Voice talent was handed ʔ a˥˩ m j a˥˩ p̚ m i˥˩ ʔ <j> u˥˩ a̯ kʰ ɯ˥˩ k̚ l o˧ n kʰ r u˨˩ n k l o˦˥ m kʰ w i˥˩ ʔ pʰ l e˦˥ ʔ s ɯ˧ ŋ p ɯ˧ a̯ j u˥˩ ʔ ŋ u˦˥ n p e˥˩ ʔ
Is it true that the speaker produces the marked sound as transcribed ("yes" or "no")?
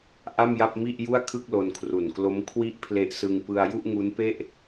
yes